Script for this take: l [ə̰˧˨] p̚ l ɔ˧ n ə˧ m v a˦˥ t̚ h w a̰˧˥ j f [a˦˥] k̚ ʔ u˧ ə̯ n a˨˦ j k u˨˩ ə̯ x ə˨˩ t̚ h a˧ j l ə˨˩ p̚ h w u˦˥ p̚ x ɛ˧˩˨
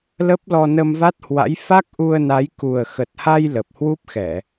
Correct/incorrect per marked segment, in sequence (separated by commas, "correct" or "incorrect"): incorrect, correct